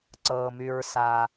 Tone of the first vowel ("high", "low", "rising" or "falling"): low